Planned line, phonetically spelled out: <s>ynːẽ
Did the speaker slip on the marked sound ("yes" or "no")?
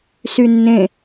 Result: no